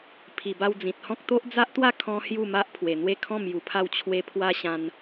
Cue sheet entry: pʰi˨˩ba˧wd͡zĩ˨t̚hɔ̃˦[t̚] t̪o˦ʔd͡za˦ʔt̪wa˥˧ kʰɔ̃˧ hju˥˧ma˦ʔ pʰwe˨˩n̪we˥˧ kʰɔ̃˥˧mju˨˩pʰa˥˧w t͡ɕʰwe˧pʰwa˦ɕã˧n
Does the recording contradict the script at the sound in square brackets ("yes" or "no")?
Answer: yes